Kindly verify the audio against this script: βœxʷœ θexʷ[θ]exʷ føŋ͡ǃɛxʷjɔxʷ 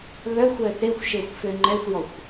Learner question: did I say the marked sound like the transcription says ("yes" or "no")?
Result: no